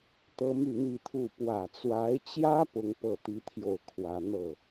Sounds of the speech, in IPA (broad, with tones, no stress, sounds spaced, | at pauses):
t̪ ɤ˥ m y˥˧ n̪ i˥˧ t̪ʰ u˥˩ p w ä˨˩ t͡s w a˧˥ ɪ̯ t͡ɕ j ä˥ p ʊ˥ ŋ p ɤ˥˩ t̪ i˥ t̪ʰ j o˥˩ ʊ̯ kʰ w ä˥ n̪ ɤ˥˩